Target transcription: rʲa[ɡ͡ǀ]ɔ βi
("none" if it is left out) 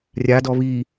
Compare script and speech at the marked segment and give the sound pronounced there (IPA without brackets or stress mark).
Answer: d